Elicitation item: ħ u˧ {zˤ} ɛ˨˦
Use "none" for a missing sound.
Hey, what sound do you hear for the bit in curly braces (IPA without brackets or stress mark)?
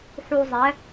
zˤ